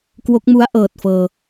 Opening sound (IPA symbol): k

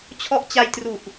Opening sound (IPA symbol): t͡ɕʰ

